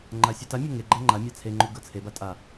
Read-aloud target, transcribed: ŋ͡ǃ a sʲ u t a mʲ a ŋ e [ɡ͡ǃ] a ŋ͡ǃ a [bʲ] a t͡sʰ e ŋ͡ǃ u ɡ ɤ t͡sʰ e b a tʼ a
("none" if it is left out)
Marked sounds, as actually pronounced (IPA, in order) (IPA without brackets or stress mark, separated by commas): ɡ͡ǃ, mʲ